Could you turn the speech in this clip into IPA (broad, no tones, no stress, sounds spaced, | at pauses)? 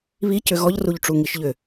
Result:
β i c ʏ ɣ ɔ ʎ r u ʎ ʈ͡ʂ u ŋ i ʃ ʎ ʏ